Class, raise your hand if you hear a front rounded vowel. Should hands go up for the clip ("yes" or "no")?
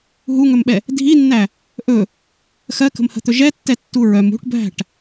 yes